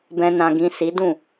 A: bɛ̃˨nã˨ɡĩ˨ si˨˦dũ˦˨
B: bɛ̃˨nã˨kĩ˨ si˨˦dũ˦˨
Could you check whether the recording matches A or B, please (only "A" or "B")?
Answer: A